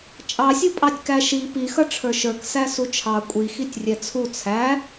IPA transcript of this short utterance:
t͡ʃʼ ɑ sʲ u pʼ ɑ tʲ k æ ʃ i p i x ʌ ʈ͡ʂʰ ə˞ ʃ ə˞ k s æ s u t͡ʃʰ ɑ kʷʼ i x i tʲ rʲ ɛ t͡sʰ u t͡sʰ æ

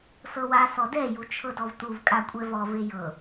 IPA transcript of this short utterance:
s ɤ w a s ɔ d ɛ j u t͡ʃʰ ɤ d ɔ v t̪ u v kʼ a kʷʼ ɛ v ɔ v e j ɤ

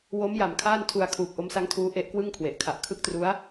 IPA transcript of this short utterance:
w o˦˥ m j a˨˩ m kʰ aː˥˩ n tʰ u˧ a̯ kʰ uː˨˩ k̚ ʔ o˦˥ m s a˦˥ ŋ tʰ uː˦˥ ʔ e˦˥ ʔ k w ɯ˥˩ ŋ kʰ w e˨˩ ʔ kʰ a˨˩ ʔ kʰ ɯ˦˥ k̚ t r u˦˥ a̯

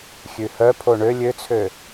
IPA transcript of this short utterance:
xʲ ʉ h œ pʰ o ɳ ø lʲ ø t͡sʰ ø

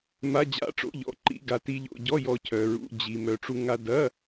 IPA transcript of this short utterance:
m a˧˥˧ d͡ʑ a̰˧˥˧ ʈ͡ʂ o̰˧˥˧ ʎ ɔ̰˧ ǃ ḭ˧˥˧ ɡ a˧ t i˧ ʎ o̰˧ ɟ ɔ˧˥˧ j ɔ˧ cʰ œ˧ ɹ ṵ˧˥˧ d͡ʑ i˧ m œ˧ ʈ͡ʂ u˧ ŋ a˧ d ɐ˧˥˧

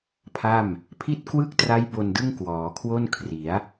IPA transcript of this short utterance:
pʰ a˥˩ m | pʰ i˥˩ t̚ k w ɯ˥˩ k̚ t r a˦˥ j b o˧ n d ɯ˥˩ ŋ k w ɔː˩˦ kʰ w o˥˩ n kʰ r i˩˦ a̯

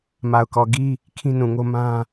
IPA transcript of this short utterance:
m a˨ ʊ̯ k ɔ˨ ɡ i˦ | kʰ ĩ˦ n ũ˨ ŋ o˦ m ã˦

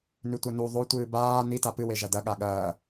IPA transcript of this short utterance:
n ʉ tʷ ɐ n u ðˤ o tʷ ɨː b aː n i t a p ɨ w e ʒ ɐ d ɐ ɠ a ɠ ɐː

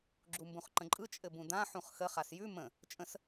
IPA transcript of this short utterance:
ɡ͡ǁ u m b ũ χ ǃ ə̃ ǃʼ ɯ t͡ʃʼ ɘ b ũ d ã ħ ũ χ x ə χ a s j ʉ m ə̃ | t͡ʃʼ ə̃ s

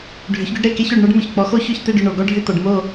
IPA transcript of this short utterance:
ɖʱ ʏ˩˥ ç ɡ ʏ˥ ɖ ɾ e˥˩ k e˥ ç o˥˩ ɖ ɳ ɔ˥ ɖ m ʏ˩ ç k͡p ɔ˩˥ x o˥ ç ʏ˥˩ ç t̪ e˥˩ ɖ ʏ˥˩ ɳ o˩ ɡ ɔ˥ ɖʱ ʏ˥˩ t̪ ɔ˩ ɖ m o˥˩

